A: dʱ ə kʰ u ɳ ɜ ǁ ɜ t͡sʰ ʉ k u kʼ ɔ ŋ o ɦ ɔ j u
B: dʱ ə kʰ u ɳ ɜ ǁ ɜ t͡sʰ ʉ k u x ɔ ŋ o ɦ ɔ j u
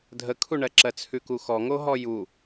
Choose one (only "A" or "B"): B